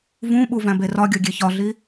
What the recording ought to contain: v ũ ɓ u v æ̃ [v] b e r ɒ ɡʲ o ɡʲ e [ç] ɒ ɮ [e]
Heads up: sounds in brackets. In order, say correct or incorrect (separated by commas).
incorrect, correct, incorrect